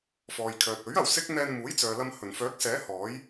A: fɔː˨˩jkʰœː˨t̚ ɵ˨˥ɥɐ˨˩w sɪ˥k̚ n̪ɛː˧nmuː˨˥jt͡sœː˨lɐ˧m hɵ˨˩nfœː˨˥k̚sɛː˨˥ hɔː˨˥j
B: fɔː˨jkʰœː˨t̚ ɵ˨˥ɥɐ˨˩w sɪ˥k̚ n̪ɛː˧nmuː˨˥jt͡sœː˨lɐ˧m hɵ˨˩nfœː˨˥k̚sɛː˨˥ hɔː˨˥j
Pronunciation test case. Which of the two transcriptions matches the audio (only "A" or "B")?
B